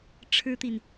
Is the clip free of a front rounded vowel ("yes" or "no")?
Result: yes